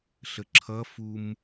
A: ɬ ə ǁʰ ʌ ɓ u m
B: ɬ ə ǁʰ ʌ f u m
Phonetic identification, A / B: B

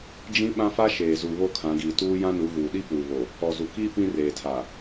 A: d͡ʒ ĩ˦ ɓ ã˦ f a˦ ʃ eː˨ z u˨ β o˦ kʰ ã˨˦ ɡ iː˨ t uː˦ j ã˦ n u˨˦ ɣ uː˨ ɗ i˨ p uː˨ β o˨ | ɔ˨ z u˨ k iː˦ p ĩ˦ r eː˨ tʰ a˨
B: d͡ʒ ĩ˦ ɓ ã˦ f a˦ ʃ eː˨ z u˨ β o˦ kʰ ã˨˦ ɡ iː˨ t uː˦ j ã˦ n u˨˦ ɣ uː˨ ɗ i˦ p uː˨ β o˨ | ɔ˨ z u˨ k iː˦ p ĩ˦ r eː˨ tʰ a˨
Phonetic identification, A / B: B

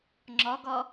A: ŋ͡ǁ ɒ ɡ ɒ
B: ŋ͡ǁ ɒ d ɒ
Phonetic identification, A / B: A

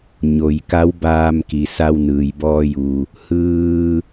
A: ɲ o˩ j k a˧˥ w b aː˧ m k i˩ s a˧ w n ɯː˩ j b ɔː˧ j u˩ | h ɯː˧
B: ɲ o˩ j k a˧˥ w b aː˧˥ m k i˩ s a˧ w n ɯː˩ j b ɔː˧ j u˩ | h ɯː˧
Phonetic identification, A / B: A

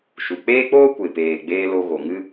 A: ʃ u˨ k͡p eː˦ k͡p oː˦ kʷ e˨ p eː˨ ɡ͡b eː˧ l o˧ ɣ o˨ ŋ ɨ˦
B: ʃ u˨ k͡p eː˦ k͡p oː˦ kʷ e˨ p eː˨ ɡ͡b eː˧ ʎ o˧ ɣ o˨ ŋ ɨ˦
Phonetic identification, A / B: A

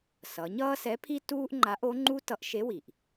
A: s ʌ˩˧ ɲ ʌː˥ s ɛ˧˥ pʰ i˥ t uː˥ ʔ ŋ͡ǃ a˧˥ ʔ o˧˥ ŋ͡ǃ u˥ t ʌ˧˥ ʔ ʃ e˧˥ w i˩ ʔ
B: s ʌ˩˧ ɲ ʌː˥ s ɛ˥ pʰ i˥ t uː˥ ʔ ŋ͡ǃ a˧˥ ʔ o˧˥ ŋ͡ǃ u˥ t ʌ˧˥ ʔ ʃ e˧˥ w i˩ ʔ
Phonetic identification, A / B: A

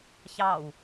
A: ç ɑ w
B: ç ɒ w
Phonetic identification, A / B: A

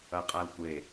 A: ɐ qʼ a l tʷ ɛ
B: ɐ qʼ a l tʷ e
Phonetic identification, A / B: B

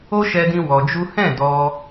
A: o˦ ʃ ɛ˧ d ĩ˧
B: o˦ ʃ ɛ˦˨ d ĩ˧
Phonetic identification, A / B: A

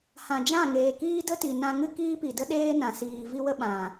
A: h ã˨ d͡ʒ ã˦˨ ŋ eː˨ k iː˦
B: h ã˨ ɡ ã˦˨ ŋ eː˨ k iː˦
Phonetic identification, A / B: A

